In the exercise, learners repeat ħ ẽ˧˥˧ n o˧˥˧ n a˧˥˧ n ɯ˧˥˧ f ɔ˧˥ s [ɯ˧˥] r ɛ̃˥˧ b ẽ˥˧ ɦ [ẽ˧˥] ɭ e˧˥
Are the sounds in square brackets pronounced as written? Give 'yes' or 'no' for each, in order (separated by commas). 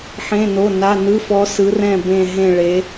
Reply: yes, no